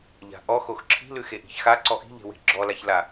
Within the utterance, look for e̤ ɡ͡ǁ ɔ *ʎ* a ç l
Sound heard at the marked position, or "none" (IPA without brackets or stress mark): l